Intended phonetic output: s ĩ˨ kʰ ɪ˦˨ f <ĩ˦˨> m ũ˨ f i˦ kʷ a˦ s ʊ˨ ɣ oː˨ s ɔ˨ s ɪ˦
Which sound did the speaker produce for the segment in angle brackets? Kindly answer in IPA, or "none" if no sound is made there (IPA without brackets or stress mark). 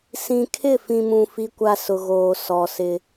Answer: ĩ˨